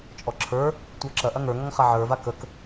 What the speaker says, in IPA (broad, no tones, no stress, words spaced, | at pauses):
t͡ʃʼɔǁʰə˞ | tʷə˞ǁɐ ʔɐŋə˞ ŋɔŋχaʕə˞ vakək